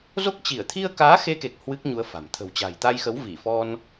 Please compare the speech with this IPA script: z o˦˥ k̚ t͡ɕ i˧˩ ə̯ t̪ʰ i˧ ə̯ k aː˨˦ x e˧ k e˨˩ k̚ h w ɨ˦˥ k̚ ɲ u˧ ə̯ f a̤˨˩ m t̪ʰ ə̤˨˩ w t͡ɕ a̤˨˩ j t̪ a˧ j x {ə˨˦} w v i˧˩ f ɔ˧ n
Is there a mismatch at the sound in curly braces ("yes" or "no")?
no